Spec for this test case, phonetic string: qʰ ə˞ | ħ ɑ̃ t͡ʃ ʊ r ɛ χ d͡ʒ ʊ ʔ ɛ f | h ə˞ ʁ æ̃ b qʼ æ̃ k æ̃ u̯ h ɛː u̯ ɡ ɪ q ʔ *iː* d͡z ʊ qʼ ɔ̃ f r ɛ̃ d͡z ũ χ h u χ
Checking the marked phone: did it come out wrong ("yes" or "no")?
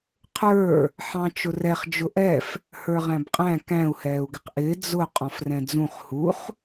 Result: yes